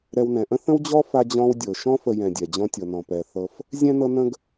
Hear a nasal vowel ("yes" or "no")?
yes